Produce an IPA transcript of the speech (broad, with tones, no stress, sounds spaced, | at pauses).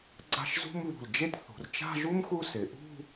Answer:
ɡ͡ǀ a̤˥˧ ʃ z ṳ˥ m β ṳ˧˩ l d͡ʒ e˥ d θ ṳ˩˧ r t͡ʃ a̤˥˧ ʒ u˥ m x u˥ s ɪ˩˧ ʔ ṳ˥˧